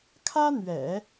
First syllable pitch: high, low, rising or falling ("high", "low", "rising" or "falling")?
high